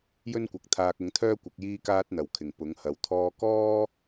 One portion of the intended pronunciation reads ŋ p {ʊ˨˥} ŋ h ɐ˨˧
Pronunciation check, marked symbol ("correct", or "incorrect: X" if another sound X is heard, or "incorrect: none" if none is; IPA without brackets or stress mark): correct